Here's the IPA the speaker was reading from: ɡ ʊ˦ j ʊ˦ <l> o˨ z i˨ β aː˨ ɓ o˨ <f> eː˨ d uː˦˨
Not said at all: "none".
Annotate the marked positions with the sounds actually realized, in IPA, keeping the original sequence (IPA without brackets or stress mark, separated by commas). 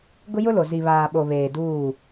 l, β